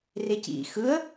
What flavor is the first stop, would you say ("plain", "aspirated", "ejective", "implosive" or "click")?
plain